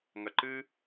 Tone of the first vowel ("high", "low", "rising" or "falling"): low